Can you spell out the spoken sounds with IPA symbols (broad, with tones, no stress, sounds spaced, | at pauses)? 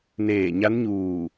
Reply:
n eː˧˩ ɲ a˧˥ n ɲ uː˧˩